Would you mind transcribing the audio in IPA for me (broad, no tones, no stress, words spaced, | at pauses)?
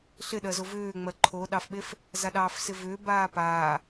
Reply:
ɬɪɗɜzo vʏːŋ͡mɜ ǃʰoɗɑfɓef | zaɗɑːfsɪvʏː baːpaː